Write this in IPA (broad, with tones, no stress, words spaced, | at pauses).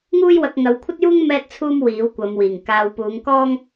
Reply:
ŋuː˥jwɐ˧k̚ ŋɐ˨˧wkʷʰɐ˥t̚juː˥ŋ mɛː˥t̚t͡sʰuː˥m wiː˨˥wkʷɐ˨˧mwiː˨˩ŋ kaː˧w puː˨˧ŋkɔː˥ŋ